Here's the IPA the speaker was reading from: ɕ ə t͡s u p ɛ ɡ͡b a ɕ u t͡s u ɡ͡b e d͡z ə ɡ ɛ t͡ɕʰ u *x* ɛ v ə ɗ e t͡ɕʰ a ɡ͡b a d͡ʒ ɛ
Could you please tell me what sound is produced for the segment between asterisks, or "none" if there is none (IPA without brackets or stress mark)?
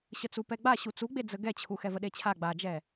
x